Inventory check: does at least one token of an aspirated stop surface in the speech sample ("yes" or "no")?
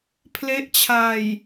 yes